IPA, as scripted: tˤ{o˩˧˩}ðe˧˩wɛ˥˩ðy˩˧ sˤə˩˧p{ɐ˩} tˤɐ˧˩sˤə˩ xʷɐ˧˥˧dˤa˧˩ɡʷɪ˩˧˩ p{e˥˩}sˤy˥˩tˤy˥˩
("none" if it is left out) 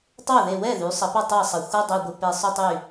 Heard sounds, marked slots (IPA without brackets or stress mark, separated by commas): o˥˩, ɐ˥˩, e˧˩